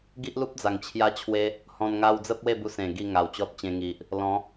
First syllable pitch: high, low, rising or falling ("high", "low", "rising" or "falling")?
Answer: high